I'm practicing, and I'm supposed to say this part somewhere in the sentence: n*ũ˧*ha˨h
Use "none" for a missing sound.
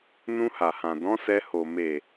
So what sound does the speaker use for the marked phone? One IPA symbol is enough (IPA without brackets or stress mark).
ũ˧